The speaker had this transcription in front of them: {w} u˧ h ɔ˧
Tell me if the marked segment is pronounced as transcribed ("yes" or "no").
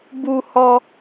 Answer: no